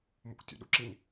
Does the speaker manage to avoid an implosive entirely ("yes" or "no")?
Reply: no